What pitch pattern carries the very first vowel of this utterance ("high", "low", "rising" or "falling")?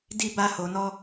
high